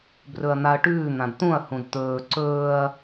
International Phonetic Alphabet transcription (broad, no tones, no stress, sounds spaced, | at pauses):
b r ɵ ɐ̯ n̪ a ɐ̯ ʈ ʉː n̪ ã d t̪ ũ ɐ̯ h ũ d t̪ ɵː ǀ ɵː ɐ̯